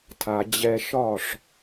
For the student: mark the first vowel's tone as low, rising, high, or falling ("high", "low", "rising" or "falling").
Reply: low